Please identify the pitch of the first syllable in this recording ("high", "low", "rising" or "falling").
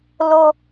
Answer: high